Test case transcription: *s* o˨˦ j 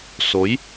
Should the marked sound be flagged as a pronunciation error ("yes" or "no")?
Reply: no